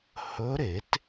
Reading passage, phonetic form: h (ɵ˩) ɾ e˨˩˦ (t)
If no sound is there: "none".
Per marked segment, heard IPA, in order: ɵ˧˥, t

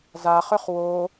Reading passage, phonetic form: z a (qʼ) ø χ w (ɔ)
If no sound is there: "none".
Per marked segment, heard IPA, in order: χ, o

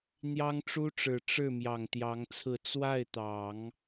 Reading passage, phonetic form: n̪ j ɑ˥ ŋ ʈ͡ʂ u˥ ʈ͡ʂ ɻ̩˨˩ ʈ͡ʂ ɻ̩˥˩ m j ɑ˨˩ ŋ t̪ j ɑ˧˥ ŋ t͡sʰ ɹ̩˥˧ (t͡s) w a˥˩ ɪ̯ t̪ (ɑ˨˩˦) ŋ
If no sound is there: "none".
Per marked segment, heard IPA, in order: t͡s, ɑ˨˩˦

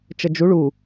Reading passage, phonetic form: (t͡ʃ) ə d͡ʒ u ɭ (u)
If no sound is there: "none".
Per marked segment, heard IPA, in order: t͡ʃ, u

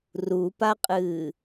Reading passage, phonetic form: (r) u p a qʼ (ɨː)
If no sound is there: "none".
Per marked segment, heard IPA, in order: r, ɨː

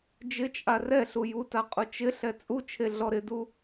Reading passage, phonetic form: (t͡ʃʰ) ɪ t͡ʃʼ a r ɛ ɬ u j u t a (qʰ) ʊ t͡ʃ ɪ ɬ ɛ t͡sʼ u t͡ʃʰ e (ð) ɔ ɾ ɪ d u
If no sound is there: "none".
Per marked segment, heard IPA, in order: d͡ʒ, qʼ, ɮ

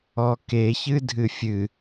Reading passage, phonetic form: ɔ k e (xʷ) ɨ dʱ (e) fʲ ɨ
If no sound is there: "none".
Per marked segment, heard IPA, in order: ç, ɨ

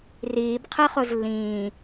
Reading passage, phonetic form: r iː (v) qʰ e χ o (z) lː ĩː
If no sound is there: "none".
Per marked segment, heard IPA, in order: b, z

